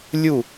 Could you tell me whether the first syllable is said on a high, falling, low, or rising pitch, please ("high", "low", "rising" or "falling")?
falling